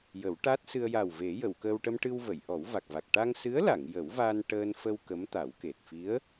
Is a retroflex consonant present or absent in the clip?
present